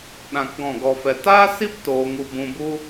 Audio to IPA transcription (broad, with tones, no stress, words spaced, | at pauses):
ɗã˨k ɡɔ̃˦˨ɡɔ˧fɛ˧ taː˦si˦p toː˧ŋu˧ bũ˧bu˦